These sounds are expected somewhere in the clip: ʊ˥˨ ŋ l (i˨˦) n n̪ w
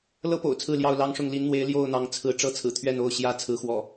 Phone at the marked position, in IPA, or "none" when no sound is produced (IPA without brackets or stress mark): i˨˦